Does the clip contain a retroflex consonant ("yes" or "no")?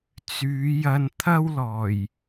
no